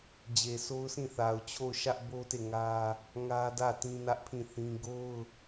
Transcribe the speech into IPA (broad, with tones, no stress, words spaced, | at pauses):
d͡ʑe˨so˦ʊ̯sĩ˦˨ θa˨ʊ̯t͡ɕʰo˦˨ʊ̯ ʃä˦ʔbo˦te˦˨ ŋä˦ | ŋä˦dä˦˨ tĩ˦nä˦ʔpʰĩ˦˨θĩ˦ ɡo˦ʊ̯